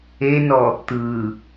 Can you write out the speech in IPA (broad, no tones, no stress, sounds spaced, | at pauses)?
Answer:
e n ɔ | t̪ ɯ